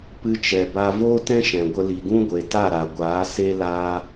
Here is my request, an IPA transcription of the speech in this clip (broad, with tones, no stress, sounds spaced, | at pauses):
p ɨ˧ t͡ʃ ɛ˨ b a˧ v oː˦ t ɛ̃˦ ʃ ɛ̃˨ ɡʷ ə˧ l i˨ ɡ ũ˦ ɡʷ e˨ t a˦˨ ɾ a˨ ɡʷ aː˨˦ s e˦ l aː˦